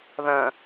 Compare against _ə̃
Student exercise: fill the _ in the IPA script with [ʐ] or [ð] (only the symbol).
ð